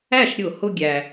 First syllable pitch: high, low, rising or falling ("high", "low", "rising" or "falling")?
falling